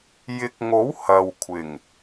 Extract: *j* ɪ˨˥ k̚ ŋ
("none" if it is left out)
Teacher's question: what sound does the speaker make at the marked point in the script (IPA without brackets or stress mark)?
j